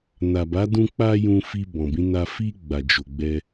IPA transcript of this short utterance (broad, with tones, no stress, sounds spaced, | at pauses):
n a˨ b a˨˦ d ũ˧ k͡p a˧ j ũ˧ f i˧ b ɔ̃˨ b ĩ˨˦ n a˧ f i˧ ɡ͡b a˨ d͡ʒ o˨ ɡ͡b ɛ˧